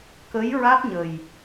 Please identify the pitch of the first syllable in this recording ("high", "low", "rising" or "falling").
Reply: rising